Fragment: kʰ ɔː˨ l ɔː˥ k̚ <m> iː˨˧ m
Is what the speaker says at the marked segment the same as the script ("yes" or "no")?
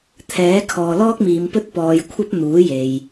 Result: yes